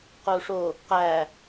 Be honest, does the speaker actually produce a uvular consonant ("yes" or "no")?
yes